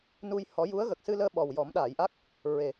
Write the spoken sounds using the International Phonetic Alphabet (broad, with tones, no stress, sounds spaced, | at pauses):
n u˧ j h ɔ˨˩˦ j u˧˥ ə̯ ɣ ə˨˩ k̚ s ɨ˧ l əː˧ ɓ ɔ˨˩ w j ɔ˨˩˦ m ɗ aː˨˩˨ j ʔ a˦˥ k̚ | ɹ e˨˩